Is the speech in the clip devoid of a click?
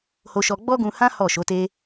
yes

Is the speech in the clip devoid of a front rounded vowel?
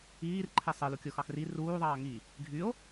no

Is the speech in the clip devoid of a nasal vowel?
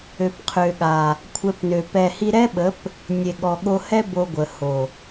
yes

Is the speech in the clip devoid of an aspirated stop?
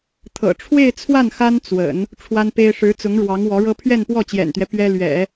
no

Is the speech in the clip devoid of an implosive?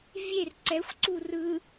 yes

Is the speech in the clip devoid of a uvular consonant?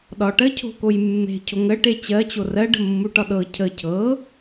yes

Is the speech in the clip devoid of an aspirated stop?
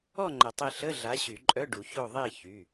yes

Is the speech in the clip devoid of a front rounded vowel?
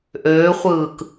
no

